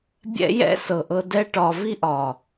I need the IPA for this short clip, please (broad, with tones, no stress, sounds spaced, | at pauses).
bʲ ɛ̰˦ j ɛ̰˦ s ɤ˨ ʔ ɤ˧ d ɛ˦ ʈ ɒ˧ v i˦ ʔ ɒ˨